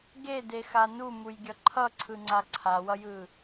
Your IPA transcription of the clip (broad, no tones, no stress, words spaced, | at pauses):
ɡedexa numujɡʲʌ ǃʰʌǀʰɯŋ͡ǀa ǀʰawʌjɯ